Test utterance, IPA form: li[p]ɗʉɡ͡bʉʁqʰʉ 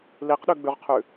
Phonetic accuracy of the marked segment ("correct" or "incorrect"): incorrect